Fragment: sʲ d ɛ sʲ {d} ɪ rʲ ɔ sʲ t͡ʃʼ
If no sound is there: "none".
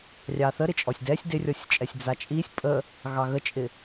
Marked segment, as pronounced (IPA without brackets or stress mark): d